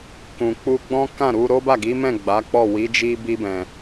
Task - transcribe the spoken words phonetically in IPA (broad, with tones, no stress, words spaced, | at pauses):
kũ˨k͡pu˧ɡ͡bɔ̃˦ kã˦˨ɾu˧ ɾo˦ba˦˨ɡi˨˦mɛ̃˦˨ ɡ͡ba˨˦k͡pɔ˦˨wi˨˦d͡ʒi˦ bi˧bɛ̃˨